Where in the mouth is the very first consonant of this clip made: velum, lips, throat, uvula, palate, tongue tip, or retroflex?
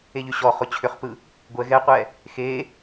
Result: palate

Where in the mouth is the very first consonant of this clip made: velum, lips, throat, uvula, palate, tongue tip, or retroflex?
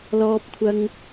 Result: tongue tip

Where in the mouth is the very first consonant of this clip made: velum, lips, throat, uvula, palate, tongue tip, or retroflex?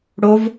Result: retroflex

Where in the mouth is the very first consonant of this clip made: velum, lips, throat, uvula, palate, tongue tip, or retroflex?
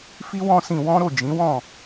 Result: lips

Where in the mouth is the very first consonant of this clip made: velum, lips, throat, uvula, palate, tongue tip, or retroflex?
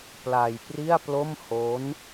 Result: lips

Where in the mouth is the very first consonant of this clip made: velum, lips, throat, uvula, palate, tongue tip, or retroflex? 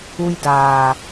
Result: palate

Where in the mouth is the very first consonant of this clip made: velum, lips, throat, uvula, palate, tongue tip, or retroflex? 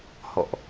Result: throat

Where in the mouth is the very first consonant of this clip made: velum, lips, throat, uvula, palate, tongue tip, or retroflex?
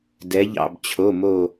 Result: tongue tip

